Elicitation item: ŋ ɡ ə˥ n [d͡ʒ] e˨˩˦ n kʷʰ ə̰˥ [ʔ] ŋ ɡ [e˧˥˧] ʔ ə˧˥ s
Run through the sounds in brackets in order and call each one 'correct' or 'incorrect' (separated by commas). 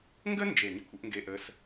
correct, correct, correct